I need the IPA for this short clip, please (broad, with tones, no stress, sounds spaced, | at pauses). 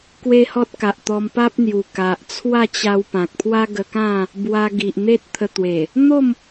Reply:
k w e˦ h ɔ˦ t̚ k a˨ ʔ t̪ ɔ˧ m p a˦ p̚ n̪ j u˨˩ k a˨ ʔ t͡sʰ w a˥˧ t͡ɕ a˧ w p ã˨ k̚ pʰ w a˦ ɡ ə˧ k ã˥˧ | b w a˧ ɡ i˨ ʔ n̪ e˦ t̚ t̪ʰ ə˧ t̪ w e˨˩ | n̪ o˥˧ m